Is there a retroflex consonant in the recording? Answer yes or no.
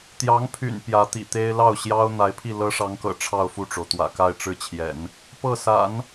yes